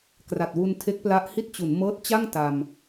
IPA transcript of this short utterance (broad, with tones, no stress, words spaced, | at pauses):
kra˨˩t̚wu˧n tʰe˦˥k̚pla˦˥ʔhi˥˩t̚t͡ɕu˩˦n mɤː˦˥t̚t͡ɕa˥˩ŋ ta˧m